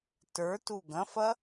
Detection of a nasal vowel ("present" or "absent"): present